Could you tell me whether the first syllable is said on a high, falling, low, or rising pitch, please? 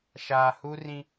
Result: low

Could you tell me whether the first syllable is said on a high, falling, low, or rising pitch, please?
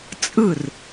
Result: falling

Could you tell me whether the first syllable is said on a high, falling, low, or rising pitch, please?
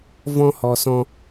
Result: high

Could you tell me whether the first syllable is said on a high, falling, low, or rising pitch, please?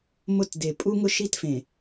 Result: falling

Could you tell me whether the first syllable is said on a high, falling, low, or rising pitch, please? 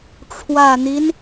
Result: low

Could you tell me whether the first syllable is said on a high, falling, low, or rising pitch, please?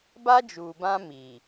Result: high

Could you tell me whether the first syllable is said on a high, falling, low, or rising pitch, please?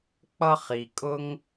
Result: high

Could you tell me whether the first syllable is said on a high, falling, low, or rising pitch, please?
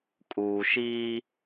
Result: low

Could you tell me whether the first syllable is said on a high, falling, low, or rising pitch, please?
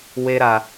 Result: high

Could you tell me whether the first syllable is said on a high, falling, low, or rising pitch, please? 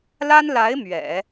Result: high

